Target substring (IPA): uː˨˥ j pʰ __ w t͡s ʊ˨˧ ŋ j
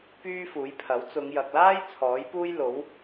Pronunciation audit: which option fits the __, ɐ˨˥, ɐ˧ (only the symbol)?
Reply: ɐ˨˥